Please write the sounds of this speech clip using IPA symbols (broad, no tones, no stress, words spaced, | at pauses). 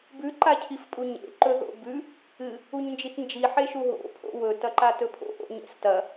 bʉ ǃacʰifpʼuɲḛ ǃɵðo̰bʉ | ɨ | uɲnd͡ʒitnd͡ʒi ħeʃuɦo̰ pʰo̰wɵ tɐǃatɵpʰo̰ ʔo̰ɲḛstɐ